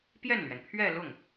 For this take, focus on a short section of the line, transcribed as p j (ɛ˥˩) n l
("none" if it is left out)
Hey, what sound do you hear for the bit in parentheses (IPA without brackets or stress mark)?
ɛ˥˩